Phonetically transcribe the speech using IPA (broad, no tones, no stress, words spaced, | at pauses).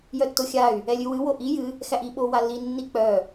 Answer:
jœtːoxʲay̯ | ɛlʲɨwɨ woʔi jɨ | xæʔi ɓowalːi nːik͡pœ